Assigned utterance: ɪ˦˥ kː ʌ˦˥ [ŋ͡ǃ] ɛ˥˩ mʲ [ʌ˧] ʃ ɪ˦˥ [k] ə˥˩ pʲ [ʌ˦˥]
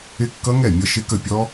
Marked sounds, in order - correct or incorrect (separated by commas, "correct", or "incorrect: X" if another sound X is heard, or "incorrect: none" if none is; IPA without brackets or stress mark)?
incorrect: ŋ, correct, correct, incorrect: ɔ˦˥